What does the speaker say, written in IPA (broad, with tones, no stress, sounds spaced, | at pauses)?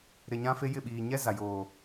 ɾ ɪ˨ ɲ ã˦ f e˦ j ɪ˦˨ ɓ iː˨ ɲ ɛ˦ z a˨ j oː˨